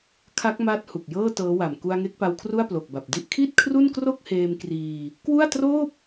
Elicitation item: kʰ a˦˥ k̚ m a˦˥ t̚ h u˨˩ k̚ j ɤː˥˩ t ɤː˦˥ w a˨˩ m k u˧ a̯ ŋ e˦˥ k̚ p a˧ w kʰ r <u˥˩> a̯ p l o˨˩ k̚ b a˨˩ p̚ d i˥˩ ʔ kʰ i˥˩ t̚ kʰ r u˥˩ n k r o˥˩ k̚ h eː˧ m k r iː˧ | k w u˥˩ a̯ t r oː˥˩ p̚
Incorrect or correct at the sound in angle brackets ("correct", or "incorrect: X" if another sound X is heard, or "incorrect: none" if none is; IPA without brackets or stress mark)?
correct